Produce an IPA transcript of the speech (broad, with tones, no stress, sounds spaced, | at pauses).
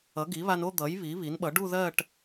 ʌ˩˥ ɡ i˩˥ β a˧ n o˥˧ d̪ ʌ˩˥ j β i˩˥ β i˩˥ n ɓ ʌ˩˥ ɖ u˥˧ ð ɜ˥˧ ʈ